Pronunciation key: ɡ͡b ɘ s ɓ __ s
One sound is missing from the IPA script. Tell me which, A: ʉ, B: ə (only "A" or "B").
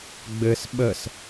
B